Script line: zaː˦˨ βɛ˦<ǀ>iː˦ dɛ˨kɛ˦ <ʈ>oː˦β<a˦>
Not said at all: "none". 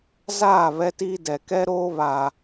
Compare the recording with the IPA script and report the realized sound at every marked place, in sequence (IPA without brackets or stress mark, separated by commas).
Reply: t, ɾ, a˨